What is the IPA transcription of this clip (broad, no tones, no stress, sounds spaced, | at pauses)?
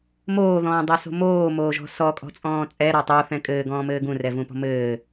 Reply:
m oː ð ɔ̃ː dˤ o s o̤ m oː m oː ʒ ɔ̤ s ɔ kʼ ɔ̤ t͡sʼ ɔ̃ː t͡sʼ ɛ ɾ ɒ tˤ o θ ɛ̃ kʼ ɘː ɡ ɔ̃ː m ɘː ɡ ũ r ɛ v ũ p ɔ̤ m ɘː